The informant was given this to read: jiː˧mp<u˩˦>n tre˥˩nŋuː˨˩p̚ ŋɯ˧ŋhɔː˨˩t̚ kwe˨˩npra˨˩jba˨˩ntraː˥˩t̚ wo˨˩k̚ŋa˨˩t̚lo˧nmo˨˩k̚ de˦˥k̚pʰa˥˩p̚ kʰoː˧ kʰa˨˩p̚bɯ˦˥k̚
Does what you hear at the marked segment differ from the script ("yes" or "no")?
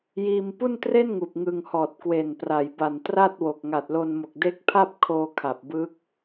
yes